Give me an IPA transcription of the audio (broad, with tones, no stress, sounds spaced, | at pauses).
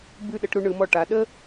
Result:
b ʉ˧˩ ɗ ə˩˧ ʈ ɾ u˧ ɳ ɯ˩˧ m ɔ˧˩ ʈ a˩˧ ɗ ə˥